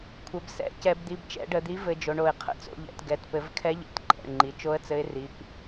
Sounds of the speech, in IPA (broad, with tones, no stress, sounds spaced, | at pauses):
kʷʰ ɘ˩˧ b s ɛ̰˩˧˩ c ɛ˧˩˧ b d̪ i˩˧˩ b t͡ʃ ɛ̰˧˩˧ ɖ ə˧˩˧ d̪ i˩˥ v ɘ˩˧ d͡ʒ o˩˧ ɳ o˧˩˧ ɪ̯ qʰ ə̰˩˥ t͡s o̰˩˧ ʎ ɛ̰˩˧ t ɡ ɛ˩˧˩ t p ɘ˧˩˧ v kʰ ɛ˧˥ ʎ ɛ̰˩˥ t ǃʼ ɛ̰˩˧˩ ɳ ŋ͡ǃ i˩˥ t͡ʃ o˧˥ ə̯ t͡s ɘ˧˥ ɪ̯ r i˩˧˩ p